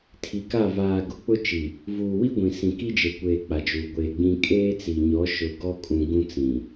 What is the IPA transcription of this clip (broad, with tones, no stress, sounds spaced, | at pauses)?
tʰ i˨ k a˦˨ v aː˨ ɡ ʊ˨ k͡p ʊ˦ t͡ʃ i˨ | v uː˨ w i˦ ɡʷ ĩ˨ s ĩ˨ k i˦ d͡ʒ e˨ kʷ eː˨ k͡p a˨ d͡ʒ uː˨ ɡʷ eː˨ ɡ͡b ĩ˦ kʼ eː˦ t͡s i˨ ɲ ɔ˨˦ ʃ ʊ˨ ɡ ɔ˦ kʼ ũ˨ ɡ ũ˦ t͡s ĩ˨